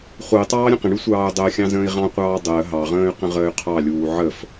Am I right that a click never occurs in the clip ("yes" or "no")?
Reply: yes